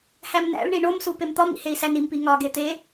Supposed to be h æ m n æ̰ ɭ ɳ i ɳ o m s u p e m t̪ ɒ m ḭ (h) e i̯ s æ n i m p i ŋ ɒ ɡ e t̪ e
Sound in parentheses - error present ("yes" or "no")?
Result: no